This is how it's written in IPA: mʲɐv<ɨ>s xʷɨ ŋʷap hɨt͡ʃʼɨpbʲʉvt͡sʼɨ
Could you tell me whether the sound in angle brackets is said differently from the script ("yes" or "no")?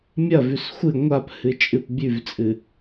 yes